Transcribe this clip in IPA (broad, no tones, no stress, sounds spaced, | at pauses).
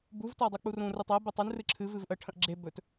b u v t a dˤ u k͡p u r ũ r ɨ tˤ ɜ b ə tˤ ɨ n r ɨ ǁʰ ɨ v ɨ v ʔ ə ʈʰ ə̃ ʔ ɡ͡ǁ e b ɵ t